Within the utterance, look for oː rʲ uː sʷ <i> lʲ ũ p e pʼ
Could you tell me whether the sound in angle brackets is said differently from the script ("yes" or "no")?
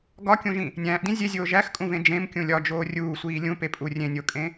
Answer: yes